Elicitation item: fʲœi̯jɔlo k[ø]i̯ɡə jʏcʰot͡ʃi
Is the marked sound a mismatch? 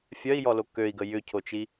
no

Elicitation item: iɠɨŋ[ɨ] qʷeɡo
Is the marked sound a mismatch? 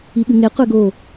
yes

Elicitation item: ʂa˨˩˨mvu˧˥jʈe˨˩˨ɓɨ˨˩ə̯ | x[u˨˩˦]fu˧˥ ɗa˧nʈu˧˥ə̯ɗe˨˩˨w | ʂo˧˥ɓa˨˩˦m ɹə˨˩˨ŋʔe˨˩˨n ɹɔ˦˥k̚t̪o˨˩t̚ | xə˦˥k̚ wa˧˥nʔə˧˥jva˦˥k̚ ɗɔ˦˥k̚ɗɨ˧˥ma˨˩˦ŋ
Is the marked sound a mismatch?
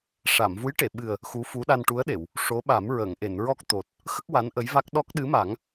yes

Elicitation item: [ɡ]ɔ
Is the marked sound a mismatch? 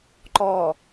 yes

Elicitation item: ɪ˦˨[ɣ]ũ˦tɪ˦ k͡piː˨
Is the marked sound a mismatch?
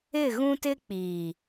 no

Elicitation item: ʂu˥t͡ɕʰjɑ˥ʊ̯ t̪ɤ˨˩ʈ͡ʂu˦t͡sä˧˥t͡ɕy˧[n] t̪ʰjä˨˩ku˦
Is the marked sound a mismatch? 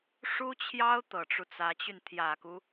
no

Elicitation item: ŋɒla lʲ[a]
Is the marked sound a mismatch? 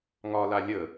yes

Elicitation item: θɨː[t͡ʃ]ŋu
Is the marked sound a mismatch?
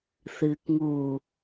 yes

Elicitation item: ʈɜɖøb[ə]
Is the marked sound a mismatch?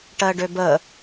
no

